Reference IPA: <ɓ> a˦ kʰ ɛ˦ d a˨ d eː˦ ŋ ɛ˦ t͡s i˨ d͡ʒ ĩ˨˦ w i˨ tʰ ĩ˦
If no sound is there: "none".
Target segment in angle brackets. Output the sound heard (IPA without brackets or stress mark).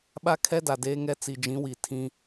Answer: ɓ